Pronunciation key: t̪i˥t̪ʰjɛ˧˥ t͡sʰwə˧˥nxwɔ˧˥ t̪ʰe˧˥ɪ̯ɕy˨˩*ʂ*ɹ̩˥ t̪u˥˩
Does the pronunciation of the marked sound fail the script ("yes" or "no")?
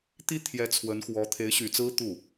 yes